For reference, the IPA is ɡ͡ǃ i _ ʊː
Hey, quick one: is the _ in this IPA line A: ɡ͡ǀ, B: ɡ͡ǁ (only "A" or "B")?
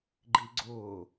A